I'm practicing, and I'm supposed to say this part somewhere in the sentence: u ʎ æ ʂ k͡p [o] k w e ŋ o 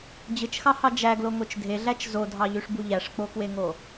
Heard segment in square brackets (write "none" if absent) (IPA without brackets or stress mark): o